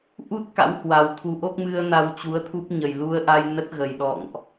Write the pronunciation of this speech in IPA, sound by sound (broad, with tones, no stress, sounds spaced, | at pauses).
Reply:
ʔ u˦˥ t̚ k a̰˧˥ w h w a˨˩ w t̪ʰ u˨˦ ʔ o˦˥ k̚ m ɨ˧ ə̯ n a˧ w t͡ɕ u˨˦ ə̯ t̪ʰ u˦˥ p̚ ɲ ə˨˩ j l u˧ ə̯ ʔ a˧ j n ə˦˥ t̚ ɣ ə˨˩ j ɗ ɔ̰˧˨ ŋ ʔ